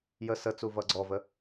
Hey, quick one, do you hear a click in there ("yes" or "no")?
yes